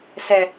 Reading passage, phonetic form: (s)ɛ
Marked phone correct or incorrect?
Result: correct